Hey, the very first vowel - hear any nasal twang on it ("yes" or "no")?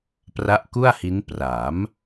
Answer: no